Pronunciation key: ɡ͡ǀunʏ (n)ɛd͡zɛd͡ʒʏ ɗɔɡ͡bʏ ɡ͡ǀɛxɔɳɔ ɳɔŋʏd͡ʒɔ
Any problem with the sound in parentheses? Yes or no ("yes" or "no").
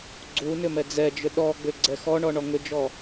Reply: yes